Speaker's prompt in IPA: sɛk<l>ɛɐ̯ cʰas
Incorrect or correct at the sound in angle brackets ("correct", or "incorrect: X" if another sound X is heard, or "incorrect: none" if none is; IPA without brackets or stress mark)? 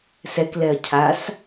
correct